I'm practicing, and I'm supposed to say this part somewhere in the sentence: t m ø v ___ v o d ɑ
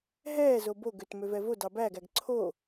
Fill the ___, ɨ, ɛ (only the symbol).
ɛ